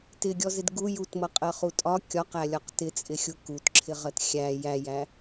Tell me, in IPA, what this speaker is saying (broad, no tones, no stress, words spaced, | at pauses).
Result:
tɪɡʲɔzɪd ɡu jutmʌqʼɜχu tʼɒ kʲɒqælʲɒq tɪt͡sʼɪxʲu kutǁʰɪʁɜt xʲæ jæjæ